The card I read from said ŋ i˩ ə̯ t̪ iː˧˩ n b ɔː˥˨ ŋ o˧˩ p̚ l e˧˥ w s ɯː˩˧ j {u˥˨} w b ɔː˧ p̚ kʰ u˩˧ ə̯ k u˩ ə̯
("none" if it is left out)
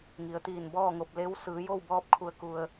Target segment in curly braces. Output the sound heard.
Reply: o˥˨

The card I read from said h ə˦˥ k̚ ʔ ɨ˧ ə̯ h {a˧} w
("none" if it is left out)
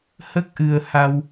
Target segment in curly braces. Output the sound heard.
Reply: a˧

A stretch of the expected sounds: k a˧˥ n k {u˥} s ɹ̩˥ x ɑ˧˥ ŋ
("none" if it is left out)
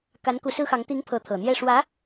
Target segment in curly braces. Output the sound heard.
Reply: u˧˥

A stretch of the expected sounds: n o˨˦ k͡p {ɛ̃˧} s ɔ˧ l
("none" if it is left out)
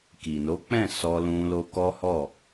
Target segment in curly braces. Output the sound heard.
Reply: ɛ̃˦˨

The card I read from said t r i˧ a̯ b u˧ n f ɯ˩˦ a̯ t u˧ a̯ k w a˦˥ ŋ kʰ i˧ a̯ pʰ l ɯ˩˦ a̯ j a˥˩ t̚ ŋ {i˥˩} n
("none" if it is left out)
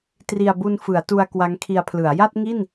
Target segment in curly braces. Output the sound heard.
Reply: i˥˩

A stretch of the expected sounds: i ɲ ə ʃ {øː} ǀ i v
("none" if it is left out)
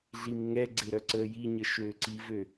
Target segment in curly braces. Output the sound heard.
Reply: øː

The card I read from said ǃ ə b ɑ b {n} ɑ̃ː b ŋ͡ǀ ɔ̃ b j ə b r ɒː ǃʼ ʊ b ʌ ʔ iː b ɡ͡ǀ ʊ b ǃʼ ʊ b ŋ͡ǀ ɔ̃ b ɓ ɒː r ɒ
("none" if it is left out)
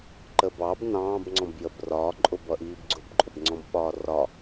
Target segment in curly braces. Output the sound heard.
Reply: n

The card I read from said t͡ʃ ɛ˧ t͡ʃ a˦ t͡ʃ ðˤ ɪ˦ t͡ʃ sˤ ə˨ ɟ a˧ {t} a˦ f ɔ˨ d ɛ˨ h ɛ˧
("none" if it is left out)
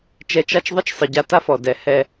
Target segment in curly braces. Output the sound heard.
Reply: t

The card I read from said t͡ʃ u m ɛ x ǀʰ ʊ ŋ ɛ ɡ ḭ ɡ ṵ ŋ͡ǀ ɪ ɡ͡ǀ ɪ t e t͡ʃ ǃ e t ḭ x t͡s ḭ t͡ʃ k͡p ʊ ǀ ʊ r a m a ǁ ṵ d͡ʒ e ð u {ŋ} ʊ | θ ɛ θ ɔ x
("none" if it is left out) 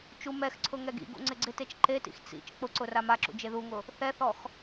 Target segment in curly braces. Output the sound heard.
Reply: ŋ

